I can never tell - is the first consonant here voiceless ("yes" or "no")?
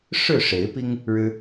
yes